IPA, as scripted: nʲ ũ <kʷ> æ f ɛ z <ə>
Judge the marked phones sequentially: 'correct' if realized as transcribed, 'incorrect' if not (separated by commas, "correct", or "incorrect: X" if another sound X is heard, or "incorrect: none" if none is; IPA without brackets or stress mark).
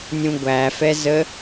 incorrect: ɡʷ, correct